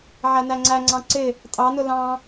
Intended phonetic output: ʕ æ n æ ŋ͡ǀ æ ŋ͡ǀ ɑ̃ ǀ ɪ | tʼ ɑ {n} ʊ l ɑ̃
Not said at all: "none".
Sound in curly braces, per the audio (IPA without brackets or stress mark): n